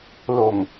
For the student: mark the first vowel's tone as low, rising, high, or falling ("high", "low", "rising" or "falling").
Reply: low